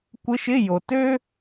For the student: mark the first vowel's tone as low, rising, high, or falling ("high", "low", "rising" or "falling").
rising